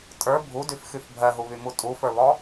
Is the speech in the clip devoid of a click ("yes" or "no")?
yes